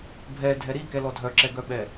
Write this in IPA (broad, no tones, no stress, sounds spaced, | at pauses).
bʱ ɛ dʱ ɛ ɾ i k ɛ l ɔ dʱ œ ǁ ɛ ɡ œ ɓ ɛ